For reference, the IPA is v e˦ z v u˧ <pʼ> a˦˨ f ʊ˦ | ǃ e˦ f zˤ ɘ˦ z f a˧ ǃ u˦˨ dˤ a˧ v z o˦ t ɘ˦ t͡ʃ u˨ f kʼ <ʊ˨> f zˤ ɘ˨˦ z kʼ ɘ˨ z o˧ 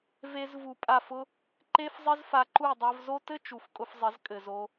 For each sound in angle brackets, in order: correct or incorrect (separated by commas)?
correct, incorrect